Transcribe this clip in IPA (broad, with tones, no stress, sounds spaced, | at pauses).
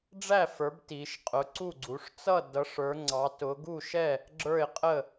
ɖ͡ʐ æ˥˨ f ə˞˨˦ b t i˨˦ ʃ qʼ ʊ˨˦ ǀ u˥˨ ɡ͡ǀ u˨˦ ʂ t͡s ʌ˥˨ d ʌ˨˦ ʂ ə˞˨˦ ŋ͡ǀ ɑ˨˦ t ʊ˨˦ ɡ u˥˨ ʃ ɛ˥˨ | ɡ͡ǁ ə˞˥˨ ɪ̯ qʼ ə˥˨